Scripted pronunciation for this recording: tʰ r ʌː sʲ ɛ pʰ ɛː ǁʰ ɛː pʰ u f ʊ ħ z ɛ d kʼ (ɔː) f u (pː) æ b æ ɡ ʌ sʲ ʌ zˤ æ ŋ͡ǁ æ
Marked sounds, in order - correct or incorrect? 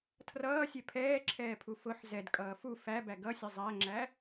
incorrect: ʌː, incorrect: f

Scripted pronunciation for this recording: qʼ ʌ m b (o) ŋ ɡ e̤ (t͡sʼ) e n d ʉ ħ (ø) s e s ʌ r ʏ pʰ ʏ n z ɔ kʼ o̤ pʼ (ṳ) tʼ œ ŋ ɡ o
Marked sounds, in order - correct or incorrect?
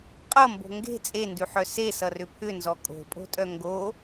incorrect: o̤, correct, incorrect: œ, incorrect: o̤

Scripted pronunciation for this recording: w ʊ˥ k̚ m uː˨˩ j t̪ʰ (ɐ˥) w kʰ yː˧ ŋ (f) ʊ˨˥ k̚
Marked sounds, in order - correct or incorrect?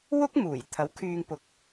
incorrect: ɐ˨˥, incorrect: p

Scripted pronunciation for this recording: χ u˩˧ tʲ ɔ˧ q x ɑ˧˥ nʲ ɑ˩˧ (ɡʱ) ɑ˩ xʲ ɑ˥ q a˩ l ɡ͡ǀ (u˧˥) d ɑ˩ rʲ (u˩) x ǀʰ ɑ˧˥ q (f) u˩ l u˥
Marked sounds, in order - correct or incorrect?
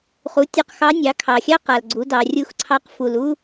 incorrect: kʰ, incorrect: u˩˧, incorrect: u˧˥, correct

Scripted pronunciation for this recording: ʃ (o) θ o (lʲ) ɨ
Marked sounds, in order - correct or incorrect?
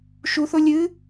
incorrect: u, correct

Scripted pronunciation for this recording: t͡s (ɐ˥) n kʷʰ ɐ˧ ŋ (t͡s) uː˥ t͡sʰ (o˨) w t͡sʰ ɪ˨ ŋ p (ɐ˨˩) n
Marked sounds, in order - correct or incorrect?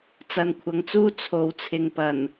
incorrect: ɐ˧, correct, correct, correct

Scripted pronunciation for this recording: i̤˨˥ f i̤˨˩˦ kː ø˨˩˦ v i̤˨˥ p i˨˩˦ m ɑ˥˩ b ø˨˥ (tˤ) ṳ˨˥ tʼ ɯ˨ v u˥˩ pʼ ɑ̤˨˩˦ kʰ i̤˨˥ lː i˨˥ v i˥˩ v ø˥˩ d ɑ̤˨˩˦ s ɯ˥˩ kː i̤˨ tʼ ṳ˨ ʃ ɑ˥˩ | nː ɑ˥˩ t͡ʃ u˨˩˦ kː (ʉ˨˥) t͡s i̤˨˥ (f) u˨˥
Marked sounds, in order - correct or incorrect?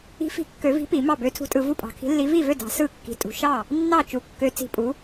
incorrect: tʰ, incorrect: ø˨˥, incorrect: pʼ

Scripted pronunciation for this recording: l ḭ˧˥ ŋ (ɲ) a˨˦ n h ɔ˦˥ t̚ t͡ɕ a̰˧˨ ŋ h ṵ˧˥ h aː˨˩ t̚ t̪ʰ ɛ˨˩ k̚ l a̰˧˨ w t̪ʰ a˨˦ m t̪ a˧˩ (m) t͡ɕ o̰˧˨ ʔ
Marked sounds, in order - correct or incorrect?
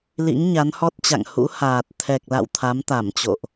correct, correct

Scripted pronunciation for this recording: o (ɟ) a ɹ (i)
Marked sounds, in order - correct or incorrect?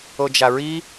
incorrect: d͡ʒ, correct

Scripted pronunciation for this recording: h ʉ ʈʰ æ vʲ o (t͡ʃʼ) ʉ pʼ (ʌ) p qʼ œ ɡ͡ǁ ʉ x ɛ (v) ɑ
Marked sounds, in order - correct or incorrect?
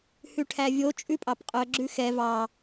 correct, incorrect: ɑ, correct

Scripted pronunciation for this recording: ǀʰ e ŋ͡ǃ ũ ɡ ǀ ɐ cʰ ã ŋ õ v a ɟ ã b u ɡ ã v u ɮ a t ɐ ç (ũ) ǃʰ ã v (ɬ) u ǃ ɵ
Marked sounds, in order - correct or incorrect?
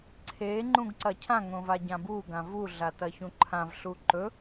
correct, correct

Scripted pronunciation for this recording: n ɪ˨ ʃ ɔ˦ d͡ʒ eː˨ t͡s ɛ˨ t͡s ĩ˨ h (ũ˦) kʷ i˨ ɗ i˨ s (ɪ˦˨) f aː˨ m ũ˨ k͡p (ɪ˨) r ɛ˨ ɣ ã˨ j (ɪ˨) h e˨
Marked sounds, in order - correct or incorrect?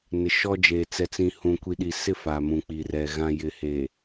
incorrect: ũ˨, correct, incorrect: i˨, correct

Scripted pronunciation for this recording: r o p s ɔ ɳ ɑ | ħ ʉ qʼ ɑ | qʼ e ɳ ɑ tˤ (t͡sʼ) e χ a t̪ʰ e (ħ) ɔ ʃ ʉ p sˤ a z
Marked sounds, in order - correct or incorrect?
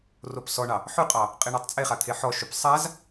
correct, correct

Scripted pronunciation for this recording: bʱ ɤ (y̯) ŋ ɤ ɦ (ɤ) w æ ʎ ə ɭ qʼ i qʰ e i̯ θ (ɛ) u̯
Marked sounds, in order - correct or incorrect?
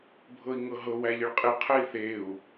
incorrect: i̯, correct, incorrect: e

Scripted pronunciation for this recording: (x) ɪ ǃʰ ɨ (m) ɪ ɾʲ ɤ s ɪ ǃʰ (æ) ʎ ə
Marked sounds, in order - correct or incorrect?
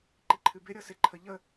incorrect: ǃ, incorrect: b, incorrect: ə

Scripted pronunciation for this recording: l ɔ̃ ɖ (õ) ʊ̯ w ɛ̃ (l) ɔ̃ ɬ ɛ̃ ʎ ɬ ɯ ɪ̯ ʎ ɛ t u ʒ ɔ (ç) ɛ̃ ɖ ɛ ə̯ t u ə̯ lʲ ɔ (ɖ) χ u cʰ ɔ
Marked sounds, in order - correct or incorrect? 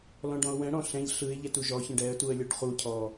incorrect: ɔ̃, incorrect: ɽ, correct, correct

